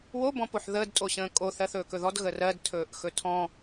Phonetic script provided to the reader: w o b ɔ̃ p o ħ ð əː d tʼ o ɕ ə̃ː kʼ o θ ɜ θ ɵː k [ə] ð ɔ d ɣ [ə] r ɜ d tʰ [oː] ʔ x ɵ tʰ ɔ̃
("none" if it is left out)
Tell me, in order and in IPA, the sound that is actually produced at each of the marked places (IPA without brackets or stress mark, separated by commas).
ɵ, ə, ɵː